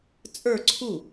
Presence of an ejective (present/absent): present